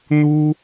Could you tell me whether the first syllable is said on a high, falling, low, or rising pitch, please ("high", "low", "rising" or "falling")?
high